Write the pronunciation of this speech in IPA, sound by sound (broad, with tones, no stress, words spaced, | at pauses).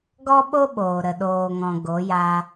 ɡɔ˦ɓo˦ɓoː˨ ɾə˨ɗoː˨ŋɔ̃˨ ɡo˨˦ja˧